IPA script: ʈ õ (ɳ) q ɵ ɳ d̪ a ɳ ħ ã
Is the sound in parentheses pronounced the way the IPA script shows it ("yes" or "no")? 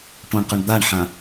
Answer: yes